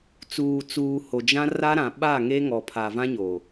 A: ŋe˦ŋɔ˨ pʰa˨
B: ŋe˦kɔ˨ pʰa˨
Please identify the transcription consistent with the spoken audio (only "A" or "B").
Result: A